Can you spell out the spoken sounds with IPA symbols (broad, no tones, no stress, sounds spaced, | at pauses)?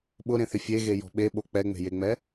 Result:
ɓ ʊ ɾ ẽ θ ɪ fʲ e ɣ e j ɔ̤ ɓ e ɓ o k͡p ɛ ŋ͡m e̤ j e ŋ͡m ɛ